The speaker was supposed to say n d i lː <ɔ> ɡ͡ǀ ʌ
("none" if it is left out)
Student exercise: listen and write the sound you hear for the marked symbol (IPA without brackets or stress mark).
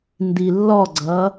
ɔ